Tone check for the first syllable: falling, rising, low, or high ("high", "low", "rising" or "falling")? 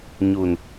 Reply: low